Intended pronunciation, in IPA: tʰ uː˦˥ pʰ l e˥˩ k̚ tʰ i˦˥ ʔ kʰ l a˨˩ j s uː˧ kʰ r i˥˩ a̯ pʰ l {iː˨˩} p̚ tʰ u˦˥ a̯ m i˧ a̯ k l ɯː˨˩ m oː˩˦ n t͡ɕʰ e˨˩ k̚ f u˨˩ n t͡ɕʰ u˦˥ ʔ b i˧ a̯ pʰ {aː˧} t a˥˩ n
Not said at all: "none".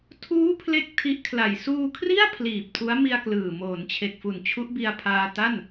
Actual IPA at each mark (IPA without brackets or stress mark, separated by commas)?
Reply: iː˨˩, aː˧